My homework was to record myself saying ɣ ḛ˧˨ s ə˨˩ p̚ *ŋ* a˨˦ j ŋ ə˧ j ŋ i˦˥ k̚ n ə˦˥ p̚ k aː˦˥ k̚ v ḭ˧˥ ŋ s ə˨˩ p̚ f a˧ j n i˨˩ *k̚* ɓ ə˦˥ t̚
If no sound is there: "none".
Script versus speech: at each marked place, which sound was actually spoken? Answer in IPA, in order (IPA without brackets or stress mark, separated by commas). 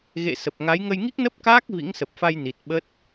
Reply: ŋ, t̚